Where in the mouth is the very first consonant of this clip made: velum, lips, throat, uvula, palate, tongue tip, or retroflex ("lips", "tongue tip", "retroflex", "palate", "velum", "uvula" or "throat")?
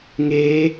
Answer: velum